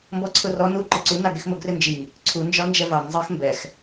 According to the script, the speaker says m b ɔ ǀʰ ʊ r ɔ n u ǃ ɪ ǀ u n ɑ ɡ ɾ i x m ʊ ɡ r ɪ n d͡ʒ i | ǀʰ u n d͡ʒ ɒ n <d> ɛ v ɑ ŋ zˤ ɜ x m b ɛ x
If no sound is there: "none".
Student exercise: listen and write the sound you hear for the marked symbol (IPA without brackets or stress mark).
d͡ʒ